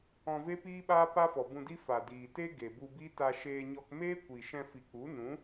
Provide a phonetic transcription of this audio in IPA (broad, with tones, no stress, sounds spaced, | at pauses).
ɔ̃˧ v e˦ p iː˦ ɓ aː˦ p a˦ f ɔ˨ b ũ˧ d i˦ f a˨ d iː˨ t e˦ ɡ e˨ b u˧ b i˦ t a˧ ʃ eː˧ ɲ ɔ˧ k m eː˦ kʷ i˨ ʃ ɛ̃˧ f i˨ k͡p u˨˦ n ũ˨˦